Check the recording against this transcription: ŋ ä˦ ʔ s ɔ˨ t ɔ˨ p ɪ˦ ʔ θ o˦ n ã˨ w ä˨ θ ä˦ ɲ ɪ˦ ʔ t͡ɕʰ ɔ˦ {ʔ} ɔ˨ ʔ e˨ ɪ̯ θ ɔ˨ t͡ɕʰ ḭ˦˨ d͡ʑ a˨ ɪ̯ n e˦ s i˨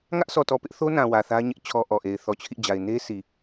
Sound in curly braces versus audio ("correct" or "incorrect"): correct